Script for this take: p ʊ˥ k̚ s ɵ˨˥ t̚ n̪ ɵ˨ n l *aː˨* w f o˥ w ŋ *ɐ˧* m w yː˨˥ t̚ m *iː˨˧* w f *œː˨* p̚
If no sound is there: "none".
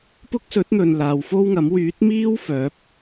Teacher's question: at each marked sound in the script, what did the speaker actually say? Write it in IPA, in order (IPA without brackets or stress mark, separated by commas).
aː˨, ɐ˨˥, iː˥, œː˨˥